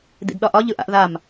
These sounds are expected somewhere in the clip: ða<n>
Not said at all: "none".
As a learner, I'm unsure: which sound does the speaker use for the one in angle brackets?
m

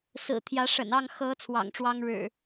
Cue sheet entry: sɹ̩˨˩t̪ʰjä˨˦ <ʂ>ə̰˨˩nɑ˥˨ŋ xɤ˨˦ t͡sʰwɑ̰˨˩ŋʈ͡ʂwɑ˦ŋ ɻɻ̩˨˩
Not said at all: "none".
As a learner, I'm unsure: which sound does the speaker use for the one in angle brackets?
ʂ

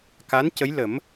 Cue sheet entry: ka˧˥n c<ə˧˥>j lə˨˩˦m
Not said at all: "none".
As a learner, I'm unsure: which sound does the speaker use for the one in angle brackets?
ə˧˥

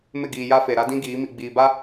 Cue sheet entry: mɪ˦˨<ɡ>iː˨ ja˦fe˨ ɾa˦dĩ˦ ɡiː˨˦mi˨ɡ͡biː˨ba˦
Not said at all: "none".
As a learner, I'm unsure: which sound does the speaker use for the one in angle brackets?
ɡ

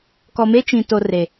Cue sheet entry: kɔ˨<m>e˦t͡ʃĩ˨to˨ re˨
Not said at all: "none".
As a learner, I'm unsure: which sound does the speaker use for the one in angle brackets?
m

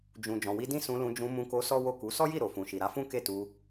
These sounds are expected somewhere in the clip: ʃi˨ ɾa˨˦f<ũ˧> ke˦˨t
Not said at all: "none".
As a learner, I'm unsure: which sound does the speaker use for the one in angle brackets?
ũ˦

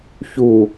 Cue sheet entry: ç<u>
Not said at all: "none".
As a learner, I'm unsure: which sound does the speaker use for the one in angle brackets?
u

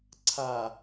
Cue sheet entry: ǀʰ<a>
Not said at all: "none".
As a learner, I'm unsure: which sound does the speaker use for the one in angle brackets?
a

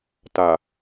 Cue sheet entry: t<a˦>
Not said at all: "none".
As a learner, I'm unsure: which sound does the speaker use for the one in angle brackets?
a˨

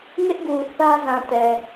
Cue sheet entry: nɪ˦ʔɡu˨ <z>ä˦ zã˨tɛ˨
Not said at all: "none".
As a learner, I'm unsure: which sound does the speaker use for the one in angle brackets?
θ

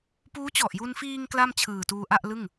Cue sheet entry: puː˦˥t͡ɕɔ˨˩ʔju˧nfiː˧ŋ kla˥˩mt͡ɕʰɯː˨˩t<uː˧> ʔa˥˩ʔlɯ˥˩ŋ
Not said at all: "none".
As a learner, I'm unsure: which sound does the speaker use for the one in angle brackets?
uː˧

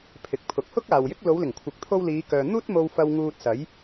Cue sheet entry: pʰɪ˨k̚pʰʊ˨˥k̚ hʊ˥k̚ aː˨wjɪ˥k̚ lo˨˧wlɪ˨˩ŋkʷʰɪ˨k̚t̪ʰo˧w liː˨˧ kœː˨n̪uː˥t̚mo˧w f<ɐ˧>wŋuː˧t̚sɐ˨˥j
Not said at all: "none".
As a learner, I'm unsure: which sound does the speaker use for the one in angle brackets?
ɐ˧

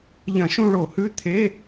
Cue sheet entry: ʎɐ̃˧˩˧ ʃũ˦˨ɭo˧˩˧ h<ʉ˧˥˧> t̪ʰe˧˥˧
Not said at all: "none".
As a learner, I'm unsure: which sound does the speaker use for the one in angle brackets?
ʉ˧˥˧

